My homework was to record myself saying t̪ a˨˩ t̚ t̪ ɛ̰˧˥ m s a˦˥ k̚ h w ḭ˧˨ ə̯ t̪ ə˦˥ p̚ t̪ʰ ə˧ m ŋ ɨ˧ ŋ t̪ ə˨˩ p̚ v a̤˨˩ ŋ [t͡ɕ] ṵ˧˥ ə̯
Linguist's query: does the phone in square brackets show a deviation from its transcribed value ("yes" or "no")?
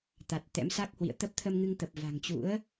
no